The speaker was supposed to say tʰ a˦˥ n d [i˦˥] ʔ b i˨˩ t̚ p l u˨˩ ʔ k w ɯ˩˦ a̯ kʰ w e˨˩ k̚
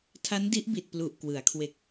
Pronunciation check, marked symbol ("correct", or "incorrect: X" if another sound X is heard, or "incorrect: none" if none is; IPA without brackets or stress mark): correct